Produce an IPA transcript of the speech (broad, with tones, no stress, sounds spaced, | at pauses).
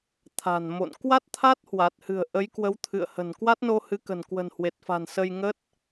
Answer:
t̪ʰ a̤˨˩ n m o̰˧˨ n k w a˦˥ t̚ t̪ʰ a˦˥ t̚ h w a˨˩ t̚ h ɨ̤˨˩ ə̯ ʔ ə˨˦ j k w ə˨˦ w t̪ʰ ɨ̰˧˨ ə̯ h ə̤˨˩ n k w a˦˥ t̚ n o˧ h ɨ˨˦ k ə̤˨˩ n k w ə̤˨˩ n h w e˨˩ t̚ f a̤˨˩ n s ə˧ j ŋ ə˦˥ t̚